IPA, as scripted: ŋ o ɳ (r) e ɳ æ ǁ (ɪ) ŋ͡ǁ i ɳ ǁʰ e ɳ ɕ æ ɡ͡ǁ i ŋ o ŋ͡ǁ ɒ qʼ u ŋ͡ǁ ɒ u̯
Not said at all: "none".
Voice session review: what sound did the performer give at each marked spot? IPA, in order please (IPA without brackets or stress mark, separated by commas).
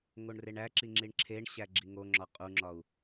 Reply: r, i